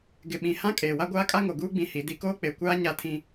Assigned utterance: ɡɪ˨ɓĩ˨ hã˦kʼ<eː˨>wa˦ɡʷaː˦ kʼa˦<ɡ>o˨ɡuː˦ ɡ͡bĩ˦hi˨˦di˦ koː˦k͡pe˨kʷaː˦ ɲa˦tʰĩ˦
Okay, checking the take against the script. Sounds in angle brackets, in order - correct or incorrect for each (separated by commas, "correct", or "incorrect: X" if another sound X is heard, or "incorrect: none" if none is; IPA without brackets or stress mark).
correct, incorrect: ŋ